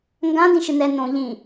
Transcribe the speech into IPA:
ŋ ɡ ã d ĩ ʃ ɨ n ɛ n õ ʎ ĩ

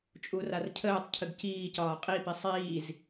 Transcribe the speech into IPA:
t͡ʃʼ u r a r cʰ əː tˤ cʰ ə ɡ c iː c ɒː qʼ i p i sˤ iː z

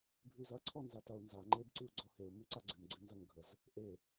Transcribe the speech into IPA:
bʱ ʉ z ɐ ǀʰ ɔ n z a t ɐ u̯ n z a ŋ͡ǃ e b ǀ ʉ u̯ ɡ͡ǀ ɔ h e u̯ m ʉ ǀ a ɡ͡ǀ ʉ m ɡ͡ǀ ʉ n z ɐ ŋ ɡʱ ə z | ʔ e

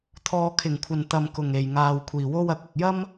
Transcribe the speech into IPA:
t̪ʰ ɔː˨ kʰ ɪ˨˩ ŋ kʷʰ ɐ˨ n t̪ ɐ˨ m k ʊ˨˩ ŋ e˨˩ j ŋ aː˨ w kʷʰ iː˨˩ w o˥ w ɐ˨˥ k̚ ɐ˨ k̚ j ɐ˥ m

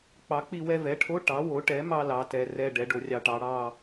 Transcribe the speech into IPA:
k͡p ɑ˩˥ k͡p i˧ w ɛ˧ v ɛ˩˥ ʈʰ o˧˥˧ ʈ ɑ˩˥ w o˩˥ ʈ ɛ˩˥ m ɑ˧ l ɑ˩˥ t ɛ˩˥ r ɛ˧˥˧ ɖ ɛ˩˥ ɖ o˧ rʲ ɑ˧ ʈ ɑ˩˥ ɽ ɑ˧

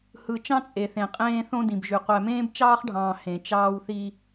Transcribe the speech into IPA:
h ɯ˨ t͡ʃ ɑ̃˦ t͡sʼ e˨ θ ẽ˨ qʼ ẽː˦ θ õ˦ d ĩ˨ b ʒ y˨ qʷ æ˨ m ẽː˦ b t͡ʃ ɑː˦ χ ɖʱ ɑ̃ː˨ h ẽ˨ t͡ʃ ɑː˦ w θ i˦

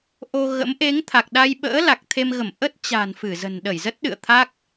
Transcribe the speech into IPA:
ʔ o˧ ɣ ə̰˧˥ m ʔ e˨˦ ŋ t̪ʰ a˨˩ k̚ ɗ a˧ j ɓ ə̰ː˧˥ l a˨˩ k̚ t̪ʰ e˧ m ɣ ə˧˩ m ʔ ə˦˥ t̚ t͡ɕ a̤˨˩ n f ɨ˧˩ z ə̤˨˩ n ɗ ə˧˩ j z ə˦˥ t̚ ɗ ɨ̰˧˨ ə̯ t̪ʰ a˦˥ k̚

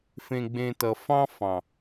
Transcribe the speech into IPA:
f ẽ˧ ɡ͡b ẽ˧ t ʌ˨ f ɑ̃˦ f ɑ̃˨

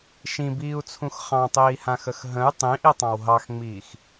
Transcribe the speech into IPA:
ʃ ĩ b iː u̯ t͡sʰ ũ x χ ɑ̃ tˤ iː h ã x ə x ɦ ə̃ y̯ tˤ ĩ ʔ i tˤ ɑ̃ w ɦ ɑ x ŋ͡m iː x

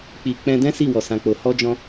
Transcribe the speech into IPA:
k͡p i˨ k͡p ɛ̃˧ d ɛ̃˦ s i˦˨ w ɔ˨ s ã˨ k͡p o˨ h ɔ˧ d͡ʒ ɔ̃˧

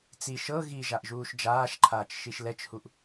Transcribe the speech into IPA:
t͡s i ʃ ɤ ɣ i ʒ a ʔ ʒ uː ʃ d͡ʒ aː ʃ ǃʰ aː t͡ʃ ʃ i ʃ l ɛ t͡ʃ h u ʔ

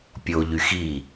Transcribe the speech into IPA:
pʲ o ʎ y x i

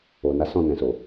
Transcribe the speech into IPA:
o˨ n a˨˦ s ɔ̃˦˨ n ɛ̃˨ s o˨

